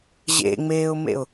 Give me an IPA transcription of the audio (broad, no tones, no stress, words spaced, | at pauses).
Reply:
ʑḛŋ͡meːʊ̯mḛʊ̯